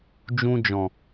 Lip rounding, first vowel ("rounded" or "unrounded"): rounded